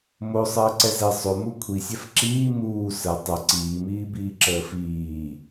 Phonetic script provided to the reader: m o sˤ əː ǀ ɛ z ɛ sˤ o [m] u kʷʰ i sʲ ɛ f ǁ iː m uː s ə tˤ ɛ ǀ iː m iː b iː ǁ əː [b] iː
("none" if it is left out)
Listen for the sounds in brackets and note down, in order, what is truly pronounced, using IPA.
m, f

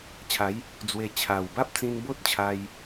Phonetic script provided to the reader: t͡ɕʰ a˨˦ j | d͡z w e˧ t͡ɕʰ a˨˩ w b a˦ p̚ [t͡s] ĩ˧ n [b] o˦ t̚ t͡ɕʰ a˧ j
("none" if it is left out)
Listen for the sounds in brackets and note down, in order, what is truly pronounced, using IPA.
t͡s, b

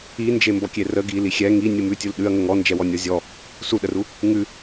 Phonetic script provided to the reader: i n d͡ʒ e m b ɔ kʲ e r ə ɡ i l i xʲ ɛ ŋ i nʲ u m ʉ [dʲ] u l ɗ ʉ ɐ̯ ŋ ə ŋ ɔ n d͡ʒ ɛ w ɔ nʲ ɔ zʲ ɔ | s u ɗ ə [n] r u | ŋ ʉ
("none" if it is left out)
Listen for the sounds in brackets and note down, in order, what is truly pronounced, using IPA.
tʲ, none

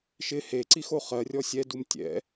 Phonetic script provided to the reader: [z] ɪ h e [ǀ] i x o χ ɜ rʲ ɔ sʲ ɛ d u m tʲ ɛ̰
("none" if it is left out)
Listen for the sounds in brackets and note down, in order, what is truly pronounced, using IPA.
ʃ, ǀ

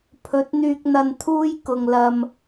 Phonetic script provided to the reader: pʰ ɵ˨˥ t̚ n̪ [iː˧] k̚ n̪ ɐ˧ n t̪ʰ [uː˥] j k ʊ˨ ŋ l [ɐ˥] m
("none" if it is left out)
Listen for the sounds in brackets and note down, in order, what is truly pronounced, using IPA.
yː˧, uː˥, ɐ˧

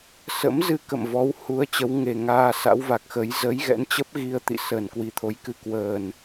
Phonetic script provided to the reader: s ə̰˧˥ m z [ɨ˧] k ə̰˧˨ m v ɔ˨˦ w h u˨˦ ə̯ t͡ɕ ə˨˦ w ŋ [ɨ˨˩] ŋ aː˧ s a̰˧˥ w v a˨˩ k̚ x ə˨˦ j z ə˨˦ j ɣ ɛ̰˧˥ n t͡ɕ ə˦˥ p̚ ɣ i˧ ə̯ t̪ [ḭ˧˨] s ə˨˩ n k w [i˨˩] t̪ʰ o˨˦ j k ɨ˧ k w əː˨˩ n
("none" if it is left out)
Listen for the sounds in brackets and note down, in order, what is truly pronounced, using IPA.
ɨ˧, e˨˩, ḭ˧˨, i˨˩

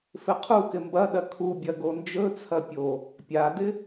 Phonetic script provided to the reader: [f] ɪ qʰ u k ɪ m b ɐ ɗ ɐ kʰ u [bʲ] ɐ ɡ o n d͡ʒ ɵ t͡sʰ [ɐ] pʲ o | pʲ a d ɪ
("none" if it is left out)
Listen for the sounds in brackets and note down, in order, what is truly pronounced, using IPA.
f, bʲ, ɐ

